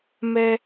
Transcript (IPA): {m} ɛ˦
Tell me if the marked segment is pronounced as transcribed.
yes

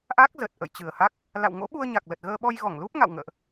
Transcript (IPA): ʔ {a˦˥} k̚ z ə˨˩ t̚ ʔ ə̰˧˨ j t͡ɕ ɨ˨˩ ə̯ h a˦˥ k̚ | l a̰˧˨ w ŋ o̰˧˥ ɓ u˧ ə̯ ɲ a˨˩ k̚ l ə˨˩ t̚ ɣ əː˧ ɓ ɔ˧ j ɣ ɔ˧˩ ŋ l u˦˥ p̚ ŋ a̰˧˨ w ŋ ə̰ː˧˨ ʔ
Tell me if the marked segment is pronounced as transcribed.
yes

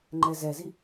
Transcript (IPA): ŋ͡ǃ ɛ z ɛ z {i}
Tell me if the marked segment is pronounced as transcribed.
yes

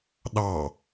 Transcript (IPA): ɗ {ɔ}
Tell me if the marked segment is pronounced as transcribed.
no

